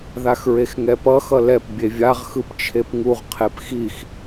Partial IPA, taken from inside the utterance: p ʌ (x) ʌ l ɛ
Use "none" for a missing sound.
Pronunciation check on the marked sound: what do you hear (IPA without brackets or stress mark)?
x